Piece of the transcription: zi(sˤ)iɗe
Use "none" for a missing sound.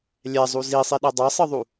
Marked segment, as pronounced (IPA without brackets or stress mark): sˤ